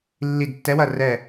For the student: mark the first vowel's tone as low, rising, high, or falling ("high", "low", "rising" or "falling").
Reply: falling